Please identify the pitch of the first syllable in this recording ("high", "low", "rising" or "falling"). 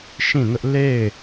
falling